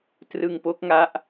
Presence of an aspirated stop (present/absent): absent